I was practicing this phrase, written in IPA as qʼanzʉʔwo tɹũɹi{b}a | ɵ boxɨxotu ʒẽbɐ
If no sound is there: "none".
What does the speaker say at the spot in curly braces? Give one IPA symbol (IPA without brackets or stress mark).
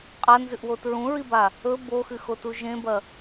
b